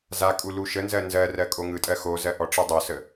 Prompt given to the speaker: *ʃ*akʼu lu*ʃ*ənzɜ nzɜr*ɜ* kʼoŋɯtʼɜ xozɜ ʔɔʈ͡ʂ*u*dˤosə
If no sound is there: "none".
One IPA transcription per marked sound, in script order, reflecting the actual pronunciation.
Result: z, ʃ, ɜ, ɯ

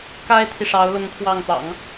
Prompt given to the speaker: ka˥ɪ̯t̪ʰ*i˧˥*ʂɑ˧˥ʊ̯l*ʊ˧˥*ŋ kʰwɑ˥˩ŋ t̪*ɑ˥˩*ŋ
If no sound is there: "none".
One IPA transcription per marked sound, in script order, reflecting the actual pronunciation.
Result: i˨, ʊ˧˥, ɑ̰˨˩˦

